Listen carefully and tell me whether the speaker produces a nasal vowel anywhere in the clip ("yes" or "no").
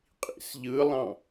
yes